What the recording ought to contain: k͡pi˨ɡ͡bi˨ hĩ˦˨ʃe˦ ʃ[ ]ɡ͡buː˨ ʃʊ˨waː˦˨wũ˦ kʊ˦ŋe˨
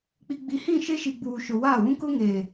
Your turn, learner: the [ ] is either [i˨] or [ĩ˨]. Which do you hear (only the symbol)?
i˨